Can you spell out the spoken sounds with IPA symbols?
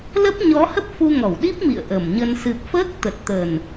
l ə˦˥ p̚ ɲ ɔ˨˦ h ə˦˥ p̚ f u˧ ŋ ɔ˧˩ w ɗ i˦˥ p̚ m ḭ˧˨ ə̯ ʔ ə˧˩ m ɲ ə˧ n s ɨ˨˩ p̚ f əː˦˥ k̚ t̪ ə˨˩ t̚ t̪ ə˨˩ n

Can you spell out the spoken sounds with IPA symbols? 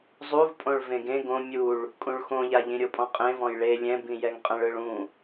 zˤ u v pʼ õ ɭ v ẽ ɡ ẽ ɡ õ mʲ u ɭ | kʼ ũ ɭ x õ ʎ a ʎ ĩ ɾʲ o pʼ ɔ̃ qʼ ẽ v ɔ̃ j ɭ e lʲ ɛ̃ b ĩ j ɛ ŋ qʼ ɛ̃ ɭ ɯ ɭ ũ

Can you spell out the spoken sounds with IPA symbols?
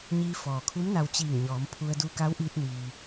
ɲ iː˧ f ɔː˩ kʰ u˧˥ m n a˧ w t͡ɕ iː˧˩ ŋ ɲ ɔː˩˧ m pʰ u˧ ə̯ d u˧ k a˧˥ w ʔ iː˧ t̚ n iː˩

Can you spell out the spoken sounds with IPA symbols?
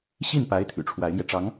ɕ i˥˩ n p a˧˥ ɪ̯ t̪ʰ y̰˨˩ ʈ͡ʂʰ w a˧˥ ɪ̯ m j ɛ˧ ʈ͡ʂ ɑ˧˥ ŋ

